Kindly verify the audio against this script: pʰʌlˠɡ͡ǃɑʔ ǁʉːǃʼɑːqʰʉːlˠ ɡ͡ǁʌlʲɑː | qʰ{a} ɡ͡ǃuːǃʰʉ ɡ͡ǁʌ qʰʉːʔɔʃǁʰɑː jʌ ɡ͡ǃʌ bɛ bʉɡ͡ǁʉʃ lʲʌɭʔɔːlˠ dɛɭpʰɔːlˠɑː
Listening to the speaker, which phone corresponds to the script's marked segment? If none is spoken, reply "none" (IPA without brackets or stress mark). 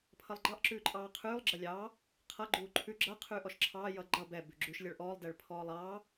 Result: ʌ